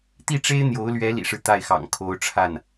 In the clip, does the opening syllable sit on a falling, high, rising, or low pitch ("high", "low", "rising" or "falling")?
falling